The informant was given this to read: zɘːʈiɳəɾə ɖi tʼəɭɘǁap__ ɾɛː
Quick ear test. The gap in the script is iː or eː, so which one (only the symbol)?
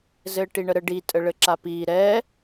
iː